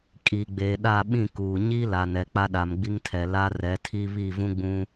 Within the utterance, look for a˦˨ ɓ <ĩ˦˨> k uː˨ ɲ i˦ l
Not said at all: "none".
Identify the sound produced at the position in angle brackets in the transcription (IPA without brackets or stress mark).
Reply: ĩ˦˨